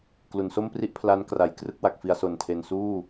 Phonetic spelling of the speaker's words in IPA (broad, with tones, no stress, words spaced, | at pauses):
klu˩˦nso˥˩mpri˥˩ʔpʰla˦˥n kra˨˩jkrɯ˥˩k̚wa˨˩k̚fi˧a̯ so˨˩ntʰe˨˩nsuː˥˩